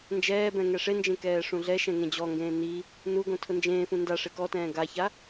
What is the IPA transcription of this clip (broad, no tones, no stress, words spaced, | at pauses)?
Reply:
nd͡ʒɛːbɛ̃ ŋɛʂend͡ʒẽ kɛːʂũɮɛʃɛ̃ ŋẽd͡ʑɔŋɡẽː ni | nuɡõ tʰʊnd͡ʒẽːfũ nda ʂekɔtɛ̃ː ɡaça